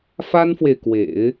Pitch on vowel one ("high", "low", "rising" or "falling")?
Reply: high